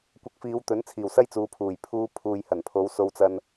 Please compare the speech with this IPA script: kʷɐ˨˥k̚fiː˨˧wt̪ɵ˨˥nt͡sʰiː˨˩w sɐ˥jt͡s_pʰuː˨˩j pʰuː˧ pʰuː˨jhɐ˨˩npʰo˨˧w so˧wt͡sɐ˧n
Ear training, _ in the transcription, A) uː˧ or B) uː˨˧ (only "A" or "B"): B